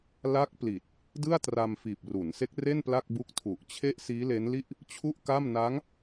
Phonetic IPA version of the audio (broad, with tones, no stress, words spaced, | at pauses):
la˦˥k̚pli˨˩t̚ | dɯ˥˩a̯tra˧m fiː˨˩p̚ru˩˦nse˦˥k̚re˥˩n pla˥˩k̚bu˦˥k̚ tʰu˨˩ʔ t͡ɕʰe˥˩ʔ siː˦˥le˦˥nli˥˩ʔ | t͡ɕʰu˥˩ʔka˥˩m na˦˥ŋ